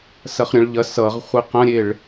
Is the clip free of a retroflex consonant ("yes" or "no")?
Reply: no